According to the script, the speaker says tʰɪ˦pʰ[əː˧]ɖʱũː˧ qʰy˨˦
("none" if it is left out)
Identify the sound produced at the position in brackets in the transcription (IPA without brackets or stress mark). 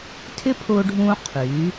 ʊː˧